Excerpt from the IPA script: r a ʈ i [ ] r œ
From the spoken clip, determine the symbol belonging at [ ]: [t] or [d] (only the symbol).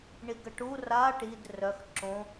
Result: d